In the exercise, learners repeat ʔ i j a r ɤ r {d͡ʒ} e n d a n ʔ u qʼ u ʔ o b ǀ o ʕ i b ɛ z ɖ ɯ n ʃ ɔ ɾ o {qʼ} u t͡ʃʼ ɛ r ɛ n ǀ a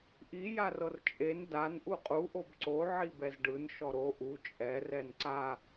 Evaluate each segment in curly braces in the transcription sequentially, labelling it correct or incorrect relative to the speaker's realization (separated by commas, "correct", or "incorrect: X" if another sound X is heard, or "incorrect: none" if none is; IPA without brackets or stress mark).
incorrect: t͡ʃʼ, incorrect: ʔ